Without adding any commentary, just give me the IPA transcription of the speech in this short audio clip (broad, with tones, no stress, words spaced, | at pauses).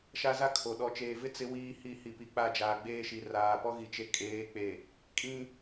ʃa˦za˦ kʰo˨ ɗɔ˨t͡ʃeː˨vɪ˦ t͡sɪ˦ wiː˦hi˦˨ hi˨pi˨ k͡pa˦˨d͡ʒaː˨ɡ͡beː˦ʃi˨ raː˨pɔ˦ ɣi˨t͡ʃe˨kʼeː˨˦ k͡pe˨ | kʼĩ˦